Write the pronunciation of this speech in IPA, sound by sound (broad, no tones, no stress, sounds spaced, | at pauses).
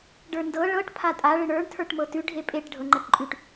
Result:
ɖ ə˞ n d ɤ ɭ ɤ ʈ pʰ a tʼ a ɭ ə ɳ ə˞ ɳ tʰ ə˞ ʈ m ɤ t ʉ ɖʱ e pʼ e ʈ ɖʱ ɤ ŋ͡ǃ ɐ ʈ ǃʼ ʉ ʈ